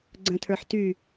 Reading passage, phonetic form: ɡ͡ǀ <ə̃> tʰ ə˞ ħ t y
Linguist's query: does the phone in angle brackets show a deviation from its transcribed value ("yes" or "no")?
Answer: no